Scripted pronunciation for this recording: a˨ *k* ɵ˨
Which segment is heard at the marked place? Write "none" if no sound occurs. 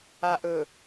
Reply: ʔ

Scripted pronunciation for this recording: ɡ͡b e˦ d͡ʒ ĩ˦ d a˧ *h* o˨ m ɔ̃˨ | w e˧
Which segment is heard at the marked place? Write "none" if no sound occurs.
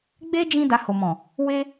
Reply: h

